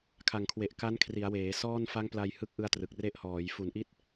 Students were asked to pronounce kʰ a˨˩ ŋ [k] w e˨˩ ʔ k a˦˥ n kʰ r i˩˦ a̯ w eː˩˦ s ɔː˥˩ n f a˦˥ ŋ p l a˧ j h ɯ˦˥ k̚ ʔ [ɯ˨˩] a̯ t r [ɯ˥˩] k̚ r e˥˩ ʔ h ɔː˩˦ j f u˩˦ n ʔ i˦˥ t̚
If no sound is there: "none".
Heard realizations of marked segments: kʰ, ɯ˧, ɯ˨˩

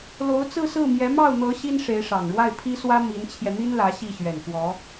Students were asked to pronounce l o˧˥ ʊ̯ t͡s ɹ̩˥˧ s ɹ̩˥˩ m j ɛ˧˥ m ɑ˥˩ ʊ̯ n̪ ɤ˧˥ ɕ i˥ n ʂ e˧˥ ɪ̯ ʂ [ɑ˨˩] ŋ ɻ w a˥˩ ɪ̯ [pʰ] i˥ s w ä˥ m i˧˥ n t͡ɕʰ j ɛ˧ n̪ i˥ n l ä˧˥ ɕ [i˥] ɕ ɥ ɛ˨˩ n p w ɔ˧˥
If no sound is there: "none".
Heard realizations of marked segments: ɑ˨˩, pʰ, i˥˩

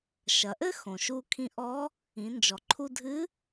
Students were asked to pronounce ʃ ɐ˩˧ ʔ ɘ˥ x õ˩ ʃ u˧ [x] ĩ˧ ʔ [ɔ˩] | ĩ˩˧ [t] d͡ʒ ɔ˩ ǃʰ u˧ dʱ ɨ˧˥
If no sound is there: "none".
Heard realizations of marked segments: kʰ, ɔ˧˥, n

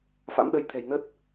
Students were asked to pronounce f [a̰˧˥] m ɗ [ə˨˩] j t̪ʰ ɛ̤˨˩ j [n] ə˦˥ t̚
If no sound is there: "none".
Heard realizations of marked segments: a̰˧˥, ə˧, n

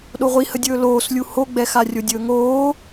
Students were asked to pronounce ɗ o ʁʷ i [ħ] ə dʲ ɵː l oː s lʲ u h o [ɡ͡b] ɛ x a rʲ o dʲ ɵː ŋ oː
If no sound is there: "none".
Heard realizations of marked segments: h, ɡ͡b

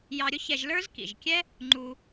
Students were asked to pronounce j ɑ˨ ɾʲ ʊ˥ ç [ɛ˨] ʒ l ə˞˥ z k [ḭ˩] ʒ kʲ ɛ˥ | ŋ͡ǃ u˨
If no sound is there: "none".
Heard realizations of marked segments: ɛ˨, ḭ˩

